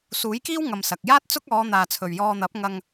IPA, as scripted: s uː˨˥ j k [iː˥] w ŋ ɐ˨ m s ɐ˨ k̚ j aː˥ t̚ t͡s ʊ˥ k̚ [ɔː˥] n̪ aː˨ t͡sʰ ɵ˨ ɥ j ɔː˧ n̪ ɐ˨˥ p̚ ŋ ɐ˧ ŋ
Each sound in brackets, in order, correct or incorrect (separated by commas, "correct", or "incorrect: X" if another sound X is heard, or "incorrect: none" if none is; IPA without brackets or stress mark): correct, incorrect: ɔː˨˧